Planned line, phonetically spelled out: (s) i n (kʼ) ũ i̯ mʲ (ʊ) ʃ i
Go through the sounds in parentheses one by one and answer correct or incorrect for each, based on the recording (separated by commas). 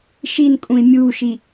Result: incorrect, correct, incorrect